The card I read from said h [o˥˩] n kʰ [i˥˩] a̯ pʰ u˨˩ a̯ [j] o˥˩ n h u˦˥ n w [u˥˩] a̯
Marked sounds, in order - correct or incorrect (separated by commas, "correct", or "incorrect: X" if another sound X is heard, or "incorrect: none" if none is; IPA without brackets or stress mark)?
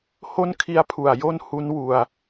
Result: correct, incorrect: i˧, correct, incorrect: u˧